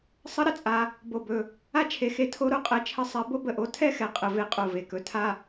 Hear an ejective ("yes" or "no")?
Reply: yes